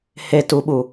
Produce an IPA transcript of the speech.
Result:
h e t u ɓ u

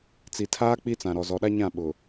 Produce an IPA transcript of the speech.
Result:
t͡s i˨ tʰ aː˦ k͡p i˦ t͡s ã˨ ɾ ɔ˨ z ɔ˨ ɗ a˦ ɲ ã˦˨ ɓ ʊ˨

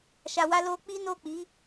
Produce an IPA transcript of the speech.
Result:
ʃ a˧ w a˦ l o˧ k͡p i˦ n o˦˨ k͡p i˨˦

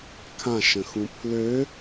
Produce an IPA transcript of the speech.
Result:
kʰ ã ʃ ə̃ x ũ pʰ l ø

